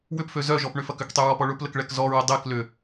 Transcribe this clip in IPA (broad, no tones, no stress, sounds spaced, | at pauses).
w ʏ p f ø z œ ʒ ɔ p ɳ ʏ f ɐ k ʏ k tˤ y ɹ ɔ p ɔ ɭ ʊ p l ə k ɭ ɛ k z ɔ ɹ ə dˤ e k l ʏ